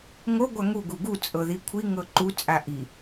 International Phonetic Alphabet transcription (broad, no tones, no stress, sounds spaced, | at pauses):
ŋ o ɡʷ a ŋ u ɡ u ɡ u t͡sʼ ɤ ð i kʷʰ i ŋ ɤ ǃ u t͡sʼ a ʔ i